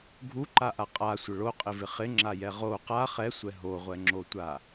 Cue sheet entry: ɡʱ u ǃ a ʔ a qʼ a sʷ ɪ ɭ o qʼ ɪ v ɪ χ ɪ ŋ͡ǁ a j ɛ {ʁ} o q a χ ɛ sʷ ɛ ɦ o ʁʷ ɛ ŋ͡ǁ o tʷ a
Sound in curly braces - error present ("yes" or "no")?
no